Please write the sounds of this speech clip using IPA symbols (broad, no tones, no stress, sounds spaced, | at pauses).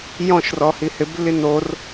j ɔ̃ ʃ r ɔ h i h ɪ b lː i n o r